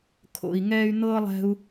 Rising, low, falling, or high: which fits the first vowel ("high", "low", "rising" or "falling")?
low